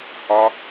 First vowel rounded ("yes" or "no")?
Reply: yes